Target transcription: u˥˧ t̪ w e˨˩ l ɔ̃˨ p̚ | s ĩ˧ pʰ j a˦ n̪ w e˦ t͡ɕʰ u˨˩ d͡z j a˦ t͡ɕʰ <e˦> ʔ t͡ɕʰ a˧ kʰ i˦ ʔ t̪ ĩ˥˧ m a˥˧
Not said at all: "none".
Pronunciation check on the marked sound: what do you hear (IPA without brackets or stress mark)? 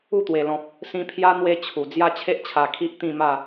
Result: e˦